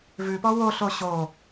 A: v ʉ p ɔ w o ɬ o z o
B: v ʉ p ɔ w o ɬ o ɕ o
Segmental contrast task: B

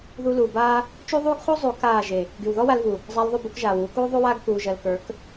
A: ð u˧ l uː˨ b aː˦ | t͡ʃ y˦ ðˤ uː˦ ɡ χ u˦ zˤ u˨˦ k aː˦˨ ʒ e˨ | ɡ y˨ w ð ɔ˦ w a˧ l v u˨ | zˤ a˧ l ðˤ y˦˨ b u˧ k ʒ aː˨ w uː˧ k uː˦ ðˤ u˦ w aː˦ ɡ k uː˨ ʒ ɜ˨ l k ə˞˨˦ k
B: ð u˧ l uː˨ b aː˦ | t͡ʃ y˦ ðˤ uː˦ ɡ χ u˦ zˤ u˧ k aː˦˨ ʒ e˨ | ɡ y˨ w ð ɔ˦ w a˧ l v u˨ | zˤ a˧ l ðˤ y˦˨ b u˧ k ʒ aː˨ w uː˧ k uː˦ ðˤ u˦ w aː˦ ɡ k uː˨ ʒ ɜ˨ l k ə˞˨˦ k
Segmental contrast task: A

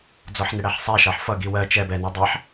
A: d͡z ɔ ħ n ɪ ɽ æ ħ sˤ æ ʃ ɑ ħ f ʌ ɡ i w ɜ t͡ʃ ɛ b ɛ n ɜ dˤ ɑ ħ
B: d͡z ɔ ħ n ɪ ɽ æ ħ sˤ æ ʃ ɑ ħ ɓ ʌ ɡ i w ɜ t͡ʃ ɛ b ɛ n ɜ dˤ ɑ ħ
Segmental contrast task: A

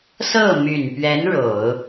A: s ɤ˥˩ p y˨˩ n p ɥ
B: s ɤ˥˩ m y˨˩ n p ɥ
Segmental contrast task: B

